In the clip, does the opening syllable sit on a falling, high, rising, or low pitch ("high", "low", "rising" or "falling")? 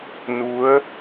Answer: rising